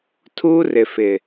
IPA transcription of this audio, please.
tʰuː˦rɪ˨fɪ˨

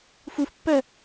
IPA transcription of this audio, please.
fufpːɜ

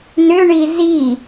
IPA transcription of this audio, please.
nʏɳi zi

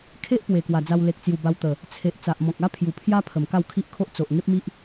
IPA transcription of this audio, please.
kʰe˦ʔ pwe˨˩kwa˨˩d͡za˧w le˨k̚t͡sju˨˩ ba˧wt̪ə˨˩ | t͡sʰe˨ʔ t͡sa˨ʔmɔ̃˨k̚ a˦ pʰju˨˩pʰja˦pʰə˨˩m ka˥˧wkʰi˦ʔkʰo˦ʔ t͡so˨ʔ ŋe˦p̚mi˦ʔ

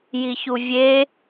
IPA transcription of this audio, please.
jiçuvʲe

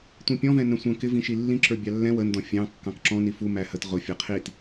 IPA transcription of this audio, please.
tʷĩpʲɔ̃vɛ̃ nə̃sʷə̃ kɪvĩ ʃilːĩǁə˞ bʲɑlːɛ̃ wəndɔ̃ fʲɑ̃ kːɑ̃kǁɔ̃ nifu mæhət ʁʊfʲɛ qʰit

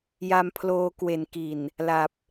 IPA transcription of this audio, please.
ja˧mpʰloː˧ kwe˩˦n ki˨˩n | la˨˩p̚

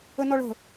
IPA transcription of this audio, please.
ənɔɭə̤

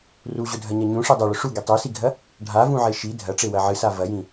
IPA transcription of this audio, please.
ruʑɵdʱɐɲɐ ɲũʂi dˤɐɭɵ ʂuɡi tˤesiɡʱɐ | ɖʱavũʕe ʃi dʱɐʈ͡ʂewɐ ʕɨsa vɐjĩ

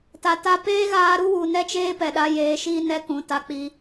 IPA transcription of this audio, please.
ta˨ta˧ peː˦ɣaː˧ ɾu˦wu˨ nɛ˦t͡ʃeː˦pɛ˨ɗa˧ jeː˨ʃiː˧ nɛ˦kũ˨ ta˧k͡pi˧

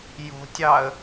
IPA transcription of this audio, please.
jo̤tʲɑə̯

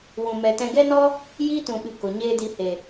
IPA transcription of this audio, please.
wũ˨ mɛ˨ tɛ̃˧ ɡɛ˦nɔ˦ | jiː˦ tũ˨ɓɨ˨ ko˨ ɲeː˦di˧he˨

